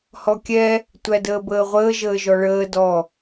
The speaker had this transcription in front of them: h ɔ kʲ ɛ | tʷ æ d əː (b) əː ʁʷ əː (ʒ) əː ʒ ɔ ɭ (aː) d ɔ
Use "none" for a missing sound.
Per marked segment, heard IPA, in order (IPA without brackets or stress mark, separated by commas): b, ʒ, əː